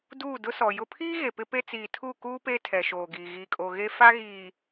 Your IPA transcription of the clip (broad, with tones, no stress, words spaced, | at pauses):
duː˦˨dʊ˦sɔ˨ jʊ˦ pʰiː˦ ɣe˨pɪ˦ pe˦ t͡siː˨tʰu˦˨kuː˦ peː˦tʰɛ˨ʃoː˨ ɡiː˨ ɣiː˨kʼo˨ ɣe˦ fa˦ ɣiː˨